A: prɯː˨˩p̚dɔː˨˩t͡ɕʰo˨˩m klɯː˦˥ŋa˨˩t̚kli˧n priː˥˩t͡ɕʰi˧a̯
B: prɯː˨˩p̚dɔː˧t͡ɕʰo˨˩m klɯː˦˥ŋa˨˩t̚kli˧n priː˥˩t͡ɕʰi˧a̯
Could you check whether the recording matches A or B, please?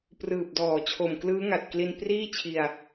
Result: A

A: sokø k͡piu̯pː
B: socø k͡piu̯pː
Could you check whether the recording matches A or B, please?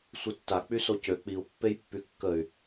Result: B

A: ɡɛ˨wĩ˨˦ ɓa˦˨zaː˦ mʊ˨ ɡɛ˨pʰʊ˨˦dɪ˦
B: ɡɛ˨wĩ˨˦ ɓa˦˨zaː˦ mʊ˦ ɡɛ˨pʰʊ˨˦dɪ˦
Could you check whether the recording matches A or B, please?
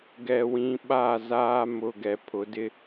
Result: A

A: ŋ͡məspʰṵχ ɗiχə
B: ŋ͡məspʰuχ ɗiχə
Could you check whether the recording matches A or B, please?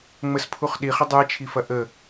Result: B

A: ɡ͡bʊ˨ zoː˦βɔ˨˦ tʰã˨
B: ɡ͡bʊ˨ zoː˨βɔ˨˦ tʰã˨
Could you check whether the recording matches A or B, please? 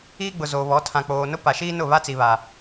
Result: B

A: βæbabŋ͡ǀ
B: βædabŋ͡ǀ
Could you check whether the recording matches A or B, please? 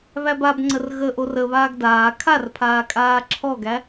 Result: A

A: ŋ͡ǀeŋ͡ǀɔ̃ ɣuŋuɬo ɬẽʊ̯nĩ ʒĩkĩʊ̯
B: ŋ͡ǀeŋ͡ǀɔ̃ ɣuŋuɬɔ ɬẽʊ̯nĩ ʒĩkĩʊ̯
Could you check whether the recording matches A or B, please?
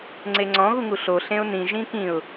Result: A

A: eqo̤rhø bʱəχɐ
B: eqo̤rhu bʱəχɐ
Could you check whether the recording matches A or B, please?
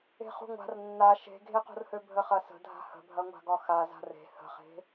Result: A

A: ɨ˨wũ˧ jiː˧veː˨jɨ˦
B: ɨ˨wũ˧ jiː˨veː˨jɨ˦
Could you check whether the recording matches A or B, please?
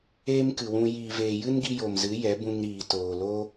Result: B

